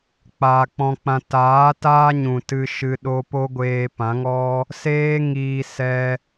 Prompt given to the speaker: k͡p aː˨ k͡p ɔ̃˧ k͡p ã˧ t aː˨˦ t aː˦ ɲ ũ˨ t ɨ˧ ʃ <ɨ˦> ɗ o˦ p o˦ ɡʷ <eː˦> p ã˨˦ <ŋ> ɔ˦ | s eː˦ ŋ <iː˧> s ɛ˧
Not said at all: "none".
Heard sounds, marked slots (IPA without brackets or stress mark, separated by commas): ɨ˧, eː˧, ŋ, iː˧